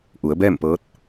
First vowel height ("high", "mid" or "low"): high